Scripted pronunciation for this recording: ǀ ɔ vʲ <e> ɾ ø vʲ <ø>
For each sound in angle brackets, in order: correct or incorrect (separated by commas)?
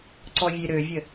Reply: correct, incorrect